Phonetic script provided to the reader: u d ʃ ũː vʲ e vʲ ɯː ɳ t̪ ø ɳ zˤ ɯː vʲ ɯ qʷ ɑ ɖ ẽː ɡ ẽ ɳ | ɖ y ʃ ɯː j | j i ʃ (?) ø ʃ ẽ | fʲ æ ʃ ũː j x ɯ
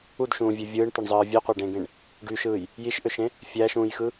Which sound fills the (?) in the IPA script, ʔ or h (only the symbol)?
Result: ʔ